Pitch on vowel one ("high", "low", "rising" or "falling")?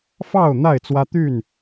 falling